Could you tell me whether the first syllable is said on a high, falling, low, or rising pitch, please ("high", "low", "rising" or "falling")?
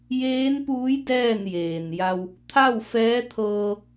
rising